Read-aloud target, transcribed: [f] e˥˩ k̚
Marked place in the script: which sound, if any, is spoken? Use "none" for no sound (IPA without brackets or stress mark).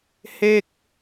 h